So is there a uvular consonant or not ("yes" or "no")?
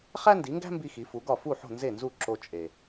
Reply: yes